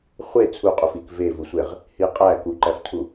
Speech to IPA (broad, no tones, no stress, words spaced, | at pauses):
χʷe t͡sʰuqʼuf ik vevusʷeʁ | hi qʼæ kuǃæftʰu